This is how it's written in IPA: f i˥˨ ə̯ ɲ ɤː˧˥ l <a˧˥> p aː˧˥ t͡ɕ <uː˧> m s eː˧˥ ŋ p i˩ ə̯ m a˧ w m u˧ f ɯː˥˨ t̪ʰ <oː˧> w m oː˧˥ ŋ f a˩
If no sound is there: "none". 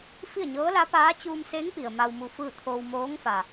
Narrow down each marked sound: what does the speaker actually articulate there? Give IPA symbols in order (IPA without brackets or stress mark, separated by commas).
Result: a˧˥, uː˧, oː˧